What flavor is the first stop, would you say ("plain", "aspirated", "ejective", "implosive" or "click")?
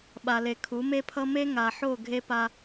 implosive